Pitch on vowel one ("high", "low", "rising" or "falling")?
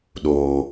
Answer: low